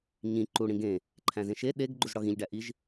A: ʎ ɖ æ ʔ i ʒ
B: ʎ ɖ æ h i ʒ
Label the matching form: A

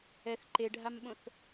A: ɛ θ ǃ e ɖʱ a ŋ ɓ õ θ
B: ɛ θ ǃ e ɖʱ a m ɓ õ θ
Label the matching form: B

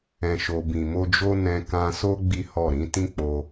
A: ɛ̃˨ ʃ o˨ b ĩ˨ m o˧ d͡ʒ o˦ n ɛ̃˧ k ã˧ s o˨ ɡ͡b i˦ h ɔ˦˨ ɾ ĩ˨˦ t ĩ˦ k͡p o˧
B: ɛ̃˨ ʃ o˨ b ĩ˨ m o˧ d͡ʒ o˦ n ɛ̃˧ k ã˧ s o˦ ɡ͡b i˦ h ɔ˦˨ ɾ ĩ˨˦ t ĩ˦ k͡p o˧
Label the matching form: B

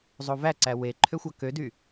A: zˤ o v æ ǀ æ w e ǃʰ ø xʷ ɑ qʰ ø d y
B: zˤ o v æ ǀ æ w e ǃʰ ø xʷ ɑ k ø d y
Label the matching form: B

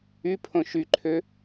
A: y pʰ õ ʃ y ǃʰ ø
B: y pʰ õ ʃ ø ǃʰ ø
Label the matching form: A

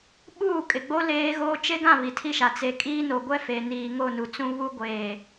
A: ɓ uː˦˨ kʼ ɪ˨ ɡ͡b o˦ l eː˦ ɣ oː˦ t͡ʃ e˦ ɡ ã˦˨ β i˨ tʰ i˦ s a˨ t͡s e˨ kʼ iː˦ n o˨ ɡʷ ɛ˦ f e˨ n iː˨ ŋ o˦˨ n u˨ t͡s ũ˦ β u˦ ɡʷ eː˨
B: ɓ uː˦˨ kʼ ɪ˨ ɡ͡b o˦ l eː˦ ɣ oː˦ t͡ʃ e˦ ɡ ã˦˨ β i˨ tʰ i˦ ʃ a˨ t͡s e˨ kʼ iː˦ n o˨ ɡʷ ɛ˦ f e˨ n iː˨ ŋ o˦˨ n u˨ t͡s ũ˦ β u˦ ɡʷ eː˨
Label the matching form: B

